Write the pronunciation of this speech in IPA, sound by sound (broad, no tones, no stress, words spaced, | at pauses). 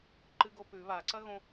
ǃɨɡopʉ βaǀɐɣõ